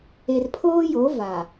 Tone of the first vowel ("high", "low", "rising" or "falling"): low